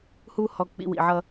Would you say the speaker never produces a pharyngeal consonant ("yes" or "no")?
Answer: no